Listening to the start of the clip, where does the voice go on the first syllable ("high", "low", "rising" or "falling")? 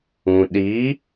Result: low